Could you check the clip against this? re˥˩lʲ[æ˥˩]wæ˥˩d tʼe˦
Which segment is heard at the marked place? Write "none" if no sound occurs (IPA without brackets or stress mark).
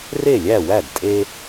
æ˥˩